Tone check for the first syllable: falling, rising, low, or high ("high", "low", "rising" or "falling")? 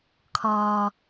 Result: low